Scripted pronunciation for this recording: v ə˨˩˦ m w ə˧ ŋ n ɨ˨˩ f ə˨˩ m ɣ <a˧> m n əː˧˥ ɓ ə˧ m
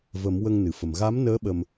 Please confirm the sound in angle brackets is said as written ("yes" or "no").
no